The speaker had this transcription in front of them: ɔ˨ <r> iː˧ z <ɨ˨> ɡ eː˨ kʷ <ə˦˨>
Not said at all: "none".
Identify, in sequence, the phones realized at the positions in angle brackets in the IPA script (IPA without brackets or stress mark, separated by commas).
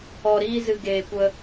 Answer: ɾ, ɨ˨, ə˧